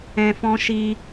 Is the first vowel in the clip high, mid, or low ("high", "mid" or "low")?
mid